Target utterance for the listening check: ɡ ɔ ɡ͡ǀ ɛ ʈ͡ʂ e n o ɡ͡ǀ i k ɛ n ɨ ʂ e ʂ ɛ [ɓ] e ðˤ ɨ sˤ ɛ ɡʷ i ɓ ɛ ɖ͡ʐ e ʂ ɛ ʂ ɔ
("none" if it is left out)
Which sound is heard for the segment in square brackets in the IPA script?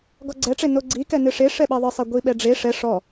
ɓ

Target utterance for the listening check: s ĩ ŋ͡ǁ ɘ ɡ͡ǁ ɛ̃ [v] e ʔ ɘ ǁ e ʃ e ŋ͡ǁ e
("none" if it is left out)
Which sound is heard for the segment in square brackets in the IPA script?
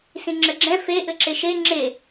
f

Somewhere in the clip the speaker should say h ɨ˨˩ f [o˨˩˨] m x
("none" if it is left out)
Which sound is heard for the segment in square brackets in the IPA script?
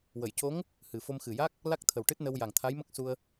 o˧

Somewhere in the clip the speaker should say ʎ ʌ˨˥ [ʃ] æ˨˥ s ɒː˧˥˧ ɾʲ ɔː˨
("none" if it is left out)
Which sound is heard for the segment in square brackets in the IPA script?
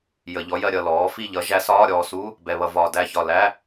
ʒ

